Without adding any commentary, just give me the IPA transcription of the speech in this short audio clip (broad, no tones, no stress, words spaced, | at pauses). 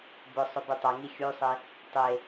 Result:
bʊsˤʊby tˤɐŋi xʲusˤe | tˤe